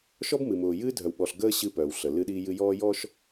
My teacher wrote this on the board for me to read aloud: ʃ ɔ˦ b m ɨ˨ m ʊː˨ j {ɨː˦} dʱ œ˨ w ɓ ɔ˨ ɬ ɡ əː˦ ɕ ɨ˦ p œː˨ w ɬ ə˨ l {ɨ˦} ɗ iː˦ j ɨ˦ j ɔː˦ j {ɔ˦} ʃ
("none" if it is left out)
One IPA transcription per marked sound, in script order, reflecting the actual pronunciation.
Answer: ɨː˦, ɨ˦, ɔ˦

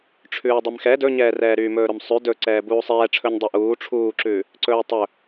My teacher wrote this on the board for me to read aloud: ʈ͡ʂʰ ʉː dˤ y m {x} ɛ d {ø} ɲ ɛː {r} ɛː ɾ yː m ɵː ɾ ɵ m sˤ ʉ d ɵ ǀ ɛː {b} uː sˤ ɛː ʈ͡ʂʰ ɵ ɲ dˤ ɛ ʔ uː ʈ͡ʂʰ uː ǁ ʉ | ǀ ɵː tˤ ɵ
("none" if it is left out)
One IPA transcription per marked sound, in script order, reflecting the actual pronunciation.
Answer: x, ɵ, r, b

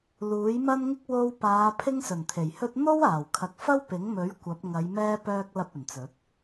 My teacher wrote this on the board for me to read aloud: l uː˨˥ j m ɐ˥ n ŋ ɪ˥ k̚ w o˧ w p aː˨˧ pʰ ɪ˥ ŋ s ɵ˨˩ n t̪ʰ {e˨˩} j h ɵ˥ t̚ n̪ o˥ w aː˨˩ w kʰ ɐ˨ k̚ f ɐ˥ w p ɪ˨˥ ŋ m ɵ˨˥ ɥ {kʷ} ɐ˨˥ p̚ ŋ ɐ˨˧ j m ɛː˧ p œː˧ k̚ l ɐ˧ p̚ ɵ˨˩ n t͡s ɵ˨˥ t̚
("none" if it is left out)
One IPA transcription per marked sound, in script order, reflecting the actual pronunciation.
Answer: e˨˩, kʷ

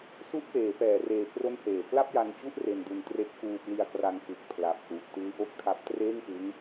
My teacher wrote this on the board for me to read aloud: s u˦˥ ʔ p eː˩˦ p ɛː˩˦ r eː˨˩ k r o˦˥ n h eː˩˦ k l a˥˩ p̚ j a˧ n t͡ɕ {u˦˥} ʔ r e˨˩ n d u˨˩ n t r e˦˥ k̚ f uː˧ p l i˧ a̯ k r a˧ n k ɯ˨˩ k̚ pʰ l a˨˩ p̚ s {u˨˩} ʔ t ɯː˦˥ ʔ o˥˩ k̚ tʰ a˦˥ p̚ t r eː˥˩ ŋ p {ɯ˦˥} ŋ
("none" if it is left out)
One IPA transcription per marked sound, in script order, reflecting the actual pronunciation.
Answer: u˦˥, u˨˩, ɯ˦˥

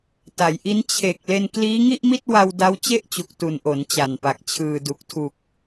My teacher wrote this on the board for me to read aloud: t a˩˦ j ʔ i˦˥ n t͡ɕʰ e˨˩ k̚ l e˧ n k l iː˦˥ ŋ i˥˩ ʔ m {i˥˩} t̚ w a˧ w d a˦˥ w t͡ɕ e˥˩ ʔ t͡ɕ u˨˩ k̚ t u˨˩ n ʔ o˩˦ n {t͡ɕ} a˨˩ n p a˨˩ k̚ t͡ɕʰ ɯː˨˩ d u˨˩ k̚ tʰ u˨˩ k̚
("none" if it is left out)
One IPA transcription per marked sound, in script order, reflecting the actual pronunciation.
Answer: i˥˩, t͡ɕ

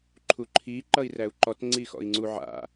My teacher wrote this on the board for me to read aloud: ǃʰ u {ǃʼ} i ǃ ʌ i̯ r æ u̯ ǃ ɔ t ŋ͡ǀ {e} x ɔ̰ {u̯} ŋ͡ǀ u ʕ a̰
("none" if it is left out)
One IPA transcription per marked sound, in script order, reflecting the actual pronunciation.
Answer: ǃʰ, i, i̯

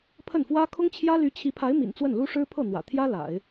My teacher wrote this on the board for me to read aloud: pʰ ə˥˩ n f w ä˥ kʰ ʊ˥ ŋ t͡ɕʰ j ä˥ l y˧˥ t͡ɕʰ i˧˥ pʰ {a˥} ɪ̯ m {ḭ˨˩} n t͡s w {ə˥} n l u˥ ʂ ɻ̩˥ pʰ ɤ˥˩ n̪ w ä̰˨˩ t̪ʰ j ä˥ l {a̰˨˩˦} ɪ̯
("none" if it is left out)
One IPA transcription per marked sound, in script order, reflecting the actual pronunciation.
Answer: a˧˥, ḭ˨˩, ə˥˩, a̰˨˩˦

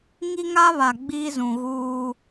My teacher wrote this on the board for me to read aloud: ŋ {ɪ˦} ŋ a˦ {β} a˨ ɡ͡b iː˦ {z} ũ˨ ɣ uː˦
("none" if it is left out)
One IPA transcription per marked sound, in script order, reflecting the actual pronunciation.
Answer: i˦, β, z

